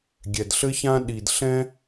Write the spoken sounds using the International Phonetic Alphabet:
ɡʲ ɛ˨ d ɬ ɘ˦ ç ã˦ ɗ i˨ d ɬ ɛ̃˦

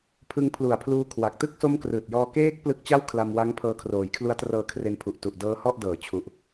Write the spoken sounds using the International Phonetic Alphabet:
pʰ ɯ˧ ŋ pʰ l u˨˩ a̯ pʰ l uː˧ kʰ w a˨˩ k̚ t ɯ˥˩ k̚ s o˦˥ m k r ɯː˨˩ t̚ j ɔː˧ k eː˦˥ k̚ p l ɯ˦˥ k̚ t͡ɕ a˥˩ w kʰ l a˧ m w a˦˥ ŋ pʰ ɤː˧ kʰ r oː˩˦ j kʰ l u˦˥ a̯ t r ɤː˧ kʰ r e˧ n pʰ u˨˩ ʔ t u˨˩ ʔ d ɤː˦˥ h ɔ˥˩ ʔ d ɤː˨˩ t͡ɕʰ u˨˩ ʔ

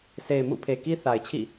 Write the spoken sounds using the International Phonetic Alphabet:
sʰ e˨ ɪ̯ m ṵ˦˨ pʰ e˨ k i˦ θ a˨ ɪ̯ t͡ɕʰ ḭ˦˨

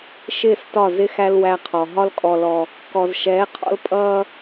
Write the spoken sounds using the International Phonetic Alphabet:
ʃ ɪː˦˨ s t ɒ˦˨ z ɪ˦ x æ˦ l w æ˦ qʰ ɔ˨ ɦ ɒ˦ l kʼ ɔ˨ l ɔ˨ | k ɔ˨ z ʃ ɛː˨˦ qʰ ɔ̰˦ l pʼ ʌː˦

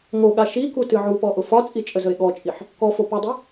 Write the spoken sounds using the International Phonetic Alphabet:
ŋ o ɠ a ʃ i k u t ɨ ʕ u p ɔ ʔ ʊ f ɒ t͡sʼ i t͡ʃʼ ə z ə e̯ ɠ ɔ t͡ʃʼ i ħ | k ɔ f o p ə dˤ ɨ

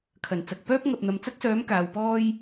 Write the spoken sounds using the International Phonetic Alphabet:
kʰ ɐ˨˩ n t͡s ɐ˨ k̚ p œː˥ p̚ ŋ ɐ˨ p̚ n̪ ɐ˨ m t͡s ɐ˥ k̚ s œː˨˥ m k aː˨˧ w p ɔː˥ j

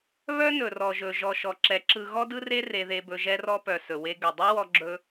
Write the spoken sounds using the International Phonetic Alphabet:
β œ˦ n ɵ˨ r ɔ˨ ʒ ɵ˨ ʒ ɔ˨ ʃ ɔ˨ ǁ ɛ˨˦ ǁ ɯ˧ ɣ ɔ˦ d ɯ˦ r e˦ r e˧ ð e˧ b ɵ˧ ʒ ɛ˧ r ɔ˧ p œ˨ s ɵ˨ w e˧ ɡ ɵ˨ dˤ ɵ˦ w ɔ˦ ɡ͡ǁ ɵ˦

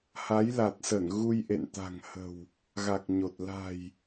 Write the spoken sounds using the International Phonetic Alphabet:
h a˨˦ j l a˨˩ t̚ s ə˧˩ n ɣ u˧ j ʔ ḛ˧˨ n t̪ a̤˨˩ ŋ h ə̤˨˩ w | ɣ a˨˩ k̚ ɲ o˨˩ t̚ l a̤˨˩ j

